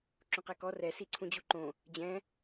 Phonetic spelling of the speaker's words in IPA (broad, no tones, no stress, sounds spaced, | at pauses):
ǁ ũ q ɛ k ɔ r ɛ s i ǀʰ ũ d͡ʑ u ǃ õ | d͡ʑ ɛ̃